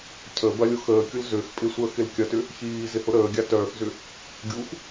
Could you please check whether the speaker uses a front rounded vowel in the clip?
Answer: yes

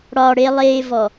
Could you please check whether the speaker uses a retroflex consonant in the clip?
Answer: yes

